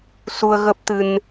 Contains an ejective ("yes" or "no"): no